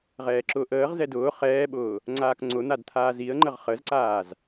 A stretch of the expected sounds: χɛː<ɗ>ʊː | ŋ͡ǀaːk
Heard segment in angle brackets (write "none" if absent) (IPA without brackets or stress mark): ɓ